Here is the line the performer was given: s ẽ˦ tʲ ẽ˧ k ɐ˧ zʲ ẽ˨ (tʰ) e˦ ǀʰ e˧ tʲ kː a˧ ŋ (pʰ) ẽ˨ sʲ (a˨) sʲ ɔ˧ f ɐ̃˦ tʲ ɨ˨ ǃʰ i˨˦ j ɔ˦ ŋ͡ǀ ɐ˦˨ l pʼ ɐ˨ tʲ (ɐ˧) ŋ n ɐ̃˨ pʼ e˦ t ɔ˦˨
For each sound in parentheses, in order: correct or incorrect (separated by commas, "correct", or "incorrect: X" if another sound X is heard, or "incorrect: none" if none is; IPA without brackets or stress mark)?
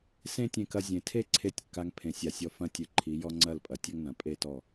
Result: correct, correct, correct, incorrect: ɐ˦